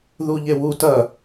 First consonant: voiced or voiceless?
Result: voiced